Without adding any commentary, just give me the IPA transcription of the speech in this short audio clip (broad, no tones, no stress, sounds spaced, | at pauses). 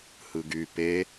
h ɯ ɡ y p e